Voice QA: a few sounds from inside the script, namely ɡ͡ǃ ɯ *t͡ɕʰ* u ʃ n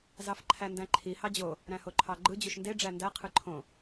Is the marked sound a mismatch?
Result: yes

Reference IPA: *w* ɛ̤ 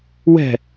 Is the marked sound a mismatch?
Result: no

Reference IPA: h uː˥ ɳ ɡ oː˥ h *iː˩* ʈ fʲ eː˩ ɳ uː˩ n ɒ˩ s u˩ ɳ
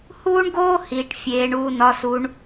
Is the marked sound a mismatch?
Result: no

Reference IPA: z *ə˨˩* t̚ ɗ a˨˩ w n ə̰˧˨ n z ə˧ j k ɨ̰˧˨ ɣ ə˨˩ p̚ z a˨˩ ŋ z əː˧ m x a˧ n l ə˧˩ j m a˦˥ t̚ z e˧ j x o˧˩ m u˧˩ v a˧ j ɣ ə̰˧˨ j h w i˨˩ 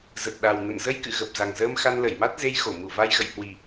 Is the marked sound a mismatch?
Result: no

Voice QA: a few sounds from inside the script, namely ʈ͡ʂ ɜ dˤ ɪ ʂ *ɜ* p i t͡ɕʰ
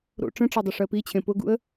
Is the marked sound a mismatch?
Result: no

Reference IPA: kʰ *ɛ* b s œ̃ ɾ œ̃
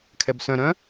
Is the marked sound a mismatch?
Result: no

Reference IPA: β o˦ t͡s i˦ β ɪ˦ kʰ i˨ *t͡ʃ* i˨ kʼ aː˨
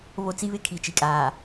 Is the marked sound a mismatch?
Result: no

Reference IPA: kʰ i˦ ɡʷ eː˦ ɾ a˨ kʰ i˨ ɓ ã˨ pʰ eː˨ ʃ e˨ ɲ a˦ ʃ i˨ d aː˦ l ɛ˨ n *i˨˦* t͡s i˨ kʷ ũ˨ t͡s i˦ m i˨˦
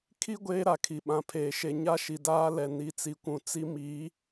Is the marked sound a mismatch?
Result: no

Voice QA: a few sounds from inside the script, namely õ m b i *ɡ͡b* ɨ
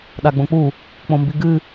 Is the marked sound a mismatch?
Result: yes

